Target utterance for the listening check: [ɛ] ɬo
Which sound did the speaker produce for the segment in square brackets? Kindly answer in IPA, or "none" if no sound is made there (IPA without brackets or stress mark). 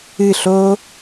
ɨ